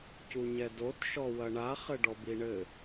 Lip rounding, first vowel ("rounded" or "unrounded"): rounded